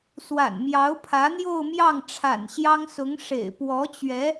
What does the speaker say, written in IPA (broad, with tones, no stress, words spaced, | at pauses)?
swa̰˨˩nmjɑ˧˥ʊ̯pʰä˧˥ n̪jo˥˧ʊ̯mjɑ˥˩ŋʈ͡ʂʰa̰˨˩nɕjɑ˥ŋ sʊ˧˥ŋʂḛ˨˩ɪ̯ pwɔ˧˥t͡ɕɥɛ˧˥